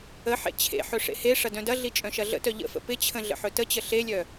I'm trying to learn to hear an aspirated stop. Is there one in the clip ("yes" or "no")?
yes